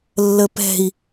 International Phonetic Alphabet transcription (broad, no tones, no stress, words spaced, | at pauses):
lːəpɛ̤i̯